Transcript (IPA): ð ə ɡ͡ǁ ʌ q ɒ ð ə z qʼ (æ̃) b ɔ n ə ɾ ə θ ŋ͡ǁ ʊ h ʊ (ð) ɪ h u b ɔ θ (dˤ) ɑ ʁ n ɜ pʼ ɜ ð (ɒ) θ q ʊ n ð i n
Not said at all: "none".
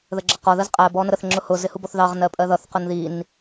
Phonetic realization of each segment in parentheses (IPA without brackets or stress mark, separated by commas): æ, z, ð, ʌ